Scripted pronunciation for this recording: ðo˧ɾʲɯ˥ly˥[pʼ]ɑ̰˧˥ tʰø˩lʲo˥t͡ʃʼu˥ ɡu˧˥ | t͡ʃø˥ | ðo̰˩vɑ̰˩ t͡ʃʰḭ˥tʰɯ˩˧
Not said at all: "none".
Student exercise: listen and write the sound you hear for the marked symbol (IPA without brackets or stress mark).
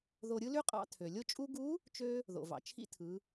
qʼ